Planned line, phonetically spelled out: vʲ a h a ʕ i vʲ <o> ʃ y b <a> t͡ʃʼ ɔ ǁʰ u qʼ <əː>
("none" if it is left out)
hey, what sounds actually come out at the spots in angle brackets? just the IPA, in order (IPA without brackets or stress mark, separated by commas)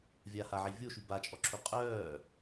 o, a, œː